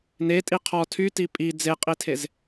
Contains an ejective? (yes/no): yes